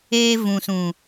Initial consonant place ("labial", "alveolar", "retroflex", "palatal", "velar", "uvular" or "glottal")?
labial